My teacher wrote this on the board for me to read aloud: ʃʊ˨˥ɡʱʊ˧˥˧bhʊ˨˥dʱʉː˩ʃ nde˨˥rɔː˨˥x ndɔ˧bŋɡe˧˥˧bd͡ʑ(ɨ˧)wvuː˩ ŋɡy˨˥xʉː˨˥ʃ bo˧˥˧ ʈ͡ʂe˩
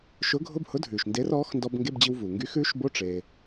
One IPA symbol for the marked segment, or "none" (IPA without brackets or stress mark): i˧